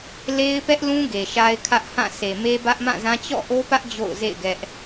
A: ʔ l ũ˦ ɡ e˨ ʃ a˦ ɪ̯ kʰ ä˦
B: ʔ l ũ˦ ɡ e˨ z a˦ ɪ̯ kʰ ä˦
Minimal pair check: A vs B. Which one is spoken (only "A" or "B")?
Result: A